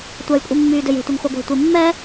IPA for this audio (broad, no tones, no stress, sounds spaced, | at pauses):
tʷ ɜ j kʷʼ i mː yː d ø j e̤ tʷ e ŋ χʷ ɛ ɡʷ e̤ tʷ i mː ɛ